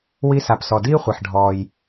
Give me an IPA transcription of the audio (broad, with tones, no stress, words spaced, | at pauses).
wi˧˥sa˩psɔ˩ diː˥χʷe˩ħ ɖʱɔː˩j